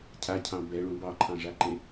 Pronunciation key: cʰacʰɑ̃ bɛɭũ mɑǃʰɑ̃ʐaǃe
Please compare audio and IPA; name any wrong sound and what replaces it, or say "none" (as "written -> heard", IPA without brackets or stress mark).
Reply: m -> b